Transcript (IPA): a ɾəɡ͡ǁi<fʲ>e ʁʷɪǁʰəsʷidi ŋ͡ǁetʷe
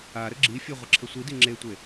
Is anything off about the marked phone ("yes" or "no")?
no